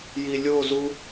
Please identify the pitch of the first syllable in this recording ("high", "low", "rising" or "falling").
low